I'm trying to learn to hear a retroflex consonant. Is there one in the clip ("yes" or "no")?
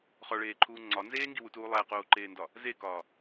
yes